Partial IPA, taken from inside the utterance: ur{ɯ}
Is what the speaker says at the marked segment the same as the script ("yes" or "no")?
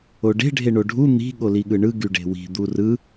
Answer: yes